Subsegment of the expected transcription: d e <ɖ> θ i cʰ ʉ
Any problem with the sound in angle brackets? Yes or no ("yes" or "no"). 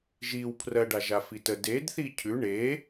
yes